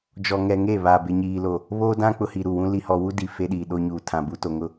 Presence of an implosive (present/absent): present